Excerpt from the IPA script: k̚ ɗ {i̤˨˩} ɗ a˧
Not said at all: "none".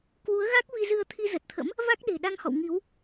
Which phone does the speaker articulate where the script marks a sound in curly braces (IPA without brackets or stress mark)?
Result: e̤˨˩